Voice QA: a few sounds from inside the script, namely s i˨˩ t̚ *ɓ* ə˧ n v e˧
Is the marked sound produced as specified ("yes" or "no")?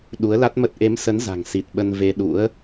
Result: yes